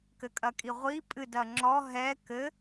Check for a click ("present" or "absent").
present